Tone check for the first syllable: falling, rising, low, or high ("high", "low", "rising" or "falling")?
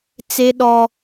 high